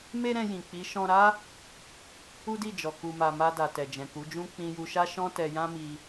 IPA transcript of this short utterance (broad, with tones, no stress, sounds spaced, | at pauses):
m e˦ ɾ ɛ̃˧ j ĩ˨ k͡p i˨˦ ʃ ɔ̃˧ ɾ a˦ | u˦ d i˦˨ d͡ʒ ɔ˨ k u˨ m a˨ m a˧ d a˨ t ɛ˨ d͡ʒ ɛ̃˨ k u˨˦ d͡ʒ ũ˦ k͡p ĩ˧ j u˧ ʃ a˦ ʃ ɔ̃˦ t ɛ˧ j ã˦ m i˧